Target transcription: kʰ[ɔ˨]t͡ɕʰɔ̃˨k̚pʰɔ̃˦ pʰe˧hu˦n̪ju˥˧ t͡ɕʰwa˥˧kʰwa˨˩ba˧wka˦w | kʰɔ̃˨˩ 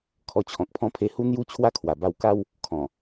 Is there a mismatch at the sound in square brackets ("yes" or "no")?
yes